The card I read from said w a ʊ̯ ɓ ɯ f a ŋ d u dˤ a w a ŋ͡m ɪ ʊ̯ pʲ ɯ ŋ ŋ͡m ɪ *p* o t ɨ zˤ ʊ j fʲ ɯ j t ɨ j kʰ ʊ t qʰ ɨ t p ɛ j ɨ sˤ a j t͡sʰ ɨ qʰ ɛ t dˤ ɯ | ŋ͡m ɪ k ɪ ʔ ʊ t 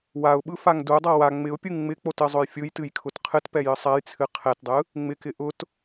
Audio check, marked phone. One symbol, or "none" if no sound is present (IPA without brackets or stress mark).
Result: k͡p